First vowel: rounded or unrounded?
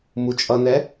rounded